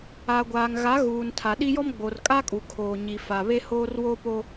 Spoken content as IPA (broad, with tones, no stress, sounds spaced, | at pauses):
a˨ ɡʷ aː˨ ŋ ɣ a˨˦ ɣ uː˨ n tʰ a˨ ɗ i˦ j ɔ˦ m ɡ͡b o˨ r kʼ a˦ kʼ u˨ kʰ oː˨ ɲ i˨ f a˨ β e˦ h oː˦ r w oː˦ p o˦